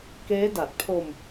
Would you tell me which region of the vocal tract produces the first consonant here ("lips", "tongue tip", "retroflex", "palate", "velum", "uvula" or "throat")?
velum